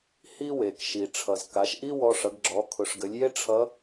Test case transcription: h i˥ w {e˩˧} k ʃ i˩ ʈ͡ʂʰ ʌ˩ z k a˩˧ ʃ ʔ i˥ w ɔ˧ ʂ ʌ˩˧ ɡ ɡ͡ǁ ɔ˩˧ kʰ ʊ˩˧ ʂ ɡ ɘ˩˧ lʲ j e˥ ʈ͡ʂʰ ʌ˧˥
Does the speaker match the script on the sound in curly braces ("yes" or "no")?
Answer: no